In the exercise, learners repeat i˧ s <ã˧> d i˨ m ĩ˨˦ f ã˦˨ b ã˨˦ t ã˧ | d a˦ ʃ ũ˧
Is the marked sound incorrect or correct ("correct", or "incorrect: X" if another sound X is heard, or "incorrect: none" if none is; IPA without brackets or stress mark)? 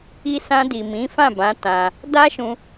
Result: correct